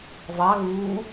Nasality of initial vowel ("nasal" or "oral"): oral